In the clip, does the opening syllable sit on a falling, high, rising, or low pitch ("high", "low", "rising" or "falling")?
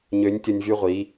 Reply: rising